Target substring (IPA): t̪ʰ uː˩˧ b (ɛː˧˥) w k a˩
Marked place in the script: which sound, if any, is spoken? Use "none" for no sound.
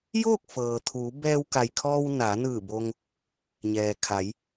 ɛː˧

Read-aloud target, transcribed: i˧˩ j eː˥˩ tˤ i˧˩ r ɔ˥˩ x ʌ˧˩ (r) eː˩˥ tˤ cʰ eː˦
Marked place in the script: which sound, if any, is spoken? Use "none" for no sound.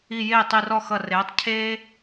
r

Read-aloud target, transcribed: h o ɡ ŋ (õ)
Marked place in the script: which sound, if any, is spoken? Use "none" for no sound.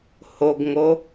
o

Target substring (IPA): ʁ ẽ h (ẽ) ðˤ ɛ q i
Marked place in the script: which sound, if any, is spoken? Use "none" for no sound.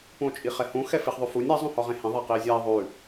ẽ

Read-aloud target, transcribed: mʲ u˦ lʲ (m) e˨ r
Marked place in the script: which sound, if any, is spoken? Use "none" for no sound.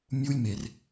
m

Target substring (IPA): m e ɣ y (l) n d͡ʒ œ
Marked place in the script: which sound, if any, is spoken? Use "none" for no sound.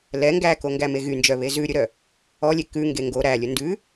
none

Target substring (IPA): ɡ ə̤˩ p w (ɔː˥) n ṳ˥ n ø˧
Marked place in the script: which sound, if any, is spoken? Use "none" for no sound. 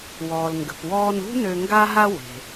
ɔː˧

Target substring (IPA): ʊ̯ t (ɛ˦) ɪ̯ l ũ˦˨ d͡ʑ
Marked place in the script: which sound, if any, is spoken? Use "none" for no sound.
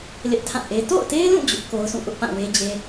e˦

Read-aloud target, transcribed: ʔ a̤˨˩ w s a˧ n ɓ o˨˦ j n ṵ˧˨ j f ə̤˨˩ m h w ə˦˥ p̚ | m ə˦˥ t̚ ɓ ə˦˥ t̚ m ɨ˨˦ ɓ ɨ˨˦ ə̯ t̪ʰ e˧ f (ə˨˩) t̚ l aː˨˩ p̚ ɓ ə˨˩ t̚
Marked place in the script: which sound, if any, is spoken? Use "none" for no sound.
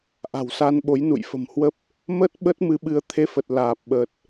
ə˨˩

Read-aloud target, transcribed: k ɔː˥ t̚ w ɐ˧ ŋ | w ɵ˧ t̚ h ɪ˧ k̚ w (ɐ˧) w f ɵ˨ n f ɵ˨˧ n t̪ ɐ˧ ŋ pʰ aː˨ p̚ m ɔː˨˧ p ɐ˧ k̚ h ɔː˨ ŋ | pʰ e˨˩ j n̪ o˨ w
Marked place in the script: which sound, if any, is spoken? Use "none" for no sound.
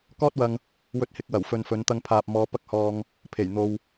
ɐ˨˩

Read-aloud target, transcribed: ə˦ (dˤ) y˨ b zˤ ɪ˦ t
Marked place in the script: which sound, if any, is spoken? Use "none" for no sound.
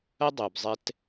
dˤ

